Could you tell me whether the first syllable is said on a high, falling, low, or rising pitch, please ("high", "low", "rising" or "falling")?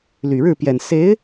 low